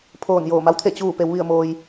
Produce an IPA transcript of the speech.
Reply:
pʰ oː˧˩ n j oː˧˩ m a˧˥ w t̪ʰ e˧˩ t͡ɕ uː˧˩ p e˩˧ w ʋ i˧˩ ə̯ m oː˩ j

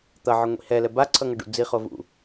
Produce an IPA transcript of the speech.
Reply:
t̪ ʌ ʕ ɯ ŋʷ ḭ h ɛ l ɛ b a ǀʰ ʌ ŋ ʌ ɖ ṵ d͡z i χ o v ṵ

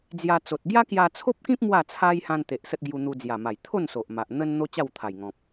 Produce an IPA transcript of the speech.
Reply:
d͡z j a˧ t͡s o˨ t̚ ɡ j a˦ k j a˧ t͡sʰ o˦ p̚ k ĩ˦ p̚ m w a˥˧ t͡sʰ a˦ j h ã˧ n t̪ e˨ ʔ s ə˦ t̚ ɡ j u˧ n̪ u˧ d͡z j a˨˩ m a˨˩ j t̪ʰ o˥˧ n s o˨ ʔ m a˨ ʔ n̪ ə˦ n n̪ o˦ t͡ɕ a˥˧ w t̪ʰ a˨˩ j ŋ ɔ̃˨ p̚

